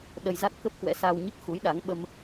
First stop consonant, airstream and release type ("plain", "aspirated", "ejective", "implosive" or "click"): implosive